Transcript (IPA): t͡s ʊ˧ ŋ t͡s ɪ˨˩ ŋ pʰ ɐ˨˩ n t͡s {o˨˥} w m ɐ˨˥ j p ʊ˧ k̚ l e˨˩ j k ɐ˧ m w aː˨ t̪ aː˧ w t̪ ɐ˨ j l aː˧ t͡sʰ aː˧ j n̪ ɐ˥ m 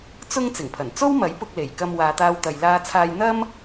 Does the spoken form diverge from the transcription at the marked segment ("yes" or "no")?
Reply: yes